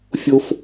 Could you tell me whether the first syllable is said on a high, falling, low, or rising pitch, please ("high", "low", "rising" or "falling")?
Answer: high